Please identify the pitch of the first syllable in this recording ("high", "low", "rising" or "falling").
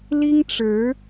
high